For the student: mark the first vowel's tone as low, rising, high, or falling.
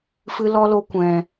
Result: high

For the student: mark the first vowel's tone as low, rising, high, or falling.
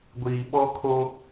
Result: low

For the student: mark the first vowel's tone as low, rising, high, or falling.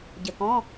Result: low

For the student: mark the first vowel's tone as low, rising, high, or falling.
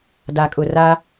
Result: low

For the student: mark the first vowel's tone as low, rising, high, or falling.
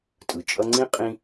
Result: low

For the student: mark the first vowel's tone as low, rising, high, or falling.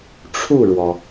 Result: falling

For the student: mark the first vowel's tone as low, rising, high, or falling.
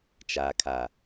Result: low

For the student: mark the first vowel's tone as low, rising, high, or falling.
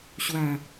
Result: falling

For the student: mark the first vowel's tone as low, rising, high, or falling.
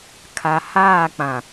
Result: low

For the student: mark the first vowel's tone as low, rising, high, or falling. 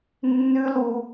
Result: high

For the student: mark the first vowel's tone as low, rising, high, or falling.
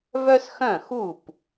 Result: high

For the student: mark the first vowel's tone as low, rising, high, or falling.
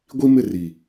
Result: high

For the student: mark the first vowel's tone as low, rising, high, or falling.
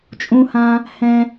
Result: high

